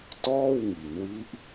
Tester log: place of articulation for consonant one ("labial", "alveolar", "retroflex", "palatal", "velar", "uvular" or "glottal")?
alveolar